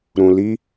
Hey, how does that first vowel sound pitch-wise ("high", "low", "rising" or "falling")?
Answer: low